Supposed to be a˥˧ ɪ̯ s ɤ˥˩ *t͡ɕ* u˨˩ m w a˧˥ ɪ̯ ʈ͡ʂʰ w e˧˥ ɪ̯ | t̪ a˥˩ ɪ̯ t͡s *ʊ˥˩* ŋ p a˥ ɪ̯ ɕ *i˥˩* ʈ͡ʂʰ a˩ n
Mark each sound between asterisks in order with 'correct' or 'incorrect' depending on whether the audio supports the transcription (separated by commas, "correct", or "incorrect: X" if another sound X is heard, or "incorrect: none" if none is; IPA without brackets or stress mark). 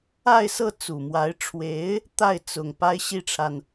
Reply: incorrect: t͡s, incorrect: ʊ˨˩, correct